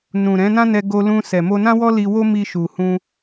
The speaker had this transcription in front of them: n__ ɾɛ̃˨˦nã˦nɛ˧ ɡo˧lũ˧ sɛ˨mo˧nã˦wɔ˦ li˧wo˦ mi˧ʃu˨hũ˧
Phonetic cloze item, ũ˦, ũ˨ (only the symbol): ũ˨